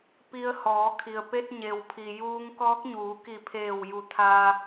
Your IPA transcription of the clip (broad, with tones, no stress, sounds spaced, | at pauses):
p i˧ ə̯ h ɔː˩˧ kʰ i˩ ə̯ p e˧ t̚ ɲ e˩ w pʰ i˩ j uː˧ ŋ k ɔː˧˥ k̚ ɲ uː˩˧ k i˧˩ pʰ eː˧˩ w j u˧˩ t̪ʰ a˧